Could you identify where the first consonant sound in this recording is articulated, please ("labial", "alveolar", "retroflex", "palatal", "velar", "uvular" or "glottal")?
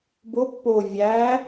labial